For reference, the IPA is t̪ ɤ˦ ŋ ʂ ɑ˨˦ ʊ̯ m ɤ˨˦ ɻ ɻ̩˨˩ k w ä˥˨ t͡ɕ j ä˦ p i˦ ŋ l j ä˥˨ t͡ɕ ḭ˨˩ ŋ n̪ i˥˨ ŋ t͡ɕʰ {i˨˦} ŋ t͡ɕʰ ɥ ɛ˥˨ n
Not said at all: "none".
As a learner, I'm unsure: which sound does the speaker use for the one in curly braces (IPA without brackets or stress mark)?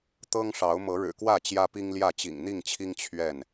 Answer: i˦